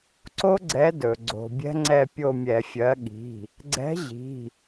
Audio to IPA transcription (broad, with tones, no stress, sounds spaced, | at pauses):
ǀ o˦ ɡ͡ǀ ɛ˨˥ d ɵ˩ ɡ͡ǀ o̤˩ bʲ ɛ̤˦ ŋ͡ǀ ɛ˦˨ pʲ o˦˨ mʲ ɛ˧˩˧ fʲ ɜ˨˥ ɠ i̤˩˧˩ | ɡ͡ǀ ɛ̤˨˥ ʑ i̤˩˧˩